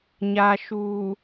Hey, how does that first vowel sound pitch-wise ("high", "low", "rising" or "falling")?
low